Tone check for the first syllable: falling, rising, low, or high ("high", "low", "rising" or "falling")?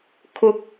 rising